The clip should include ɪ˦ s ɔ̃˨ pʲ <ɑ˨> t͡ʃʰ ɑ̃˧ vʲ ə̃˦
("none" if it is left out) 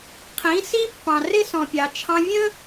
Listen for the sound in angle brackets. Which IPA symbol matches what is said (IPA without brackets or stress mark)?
ɑ˨